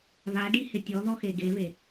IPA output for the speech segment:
βaɖihɪ tʲɔðɔxe ɡeβe

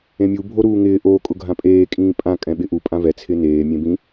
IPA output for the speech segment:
ẽmʲu bʱoɾuːŋɪː ʔo kʼʊɡʱãpʼeː kʼĩːpʼã kʼɛ̃ɓɪʔu pʼãvɛ t͡sʰɪneː mʲẽbĩ

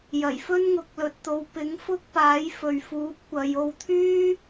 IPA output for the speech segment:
jɐ˨˩jfɵ˥nŋʊ˨˥k̚lɵ˨t̚ t̪o˨˧wpɪ˨˥ŋfʊ˥k̚paː˨˥j fɵ˨ɥfuː˨˥p̚kʷɐ˨˧jo˧w t̪ʰyː˥

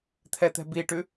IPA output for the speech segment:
t̪ʰɛt̪ɛ̤biʈʉ

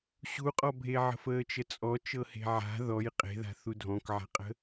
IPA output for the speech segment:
ɕuqʼɔbʱeʕə̤f əːt͡ʃət͡sʼɔt͡ʃɤ he̤ʕa̤ ðɔj qʼe̤ða̤ θudʱɔ̃kʕa̤qʼə̤

